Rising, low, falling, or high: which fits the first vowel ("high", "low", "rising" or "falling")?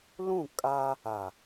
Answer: falling